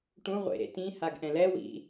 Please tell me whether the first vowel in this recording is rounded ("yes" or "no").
yes